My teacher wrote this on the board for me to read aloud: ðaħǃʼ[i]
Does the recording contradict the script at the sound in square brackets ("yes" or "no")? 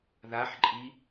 no